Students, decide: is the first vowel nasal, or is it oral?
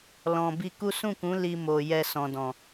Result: nasal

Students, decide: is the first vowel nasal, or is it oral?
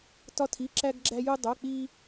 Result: oral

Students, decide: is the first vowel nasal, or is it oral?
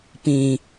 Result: nasal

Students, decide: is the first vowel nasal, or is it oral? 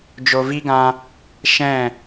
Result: oral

